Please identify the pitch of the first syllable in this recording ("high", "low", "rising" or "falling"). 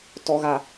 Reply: low